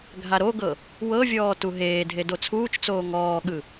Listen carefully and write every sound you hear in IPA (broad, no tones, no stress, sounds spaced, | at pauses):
ɡʱ a ɾ o ɡ ɤ | w ɤ vʲ ɔː t u ɦ eː dʱ e d o t͡sʰ uː t͡ʃ t͡s oː ŋ ɔː ɠ ɯ